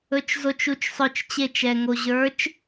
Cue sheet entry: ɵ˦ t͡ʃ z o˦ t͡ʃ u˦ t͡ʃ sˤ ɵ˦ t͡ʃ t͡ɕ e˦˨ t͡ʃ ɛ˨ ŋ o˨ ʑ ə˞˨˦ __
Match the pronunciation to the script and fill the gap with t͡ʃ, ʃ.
t͡ʃ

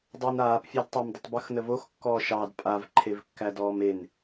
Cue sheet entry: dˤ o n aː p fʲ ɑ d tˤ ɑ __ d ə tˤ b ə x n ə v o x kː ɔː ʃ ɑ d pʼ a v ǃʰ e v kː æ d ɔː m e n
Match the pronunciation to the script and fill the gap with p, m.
m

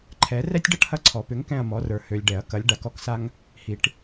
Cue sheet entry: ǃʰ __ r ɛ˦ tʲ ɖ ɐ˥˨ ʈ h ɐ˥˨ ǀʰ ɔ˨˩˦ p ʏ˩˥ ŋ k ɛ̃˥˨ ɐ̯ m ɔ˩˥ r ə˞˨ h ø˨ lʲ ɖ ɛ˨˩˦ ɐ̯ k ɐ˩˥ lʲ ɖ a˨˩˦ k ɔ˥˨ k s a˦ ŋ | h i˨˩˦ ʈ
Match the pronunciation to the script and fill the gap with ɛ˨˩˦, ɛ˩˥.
ɛ˨˩˦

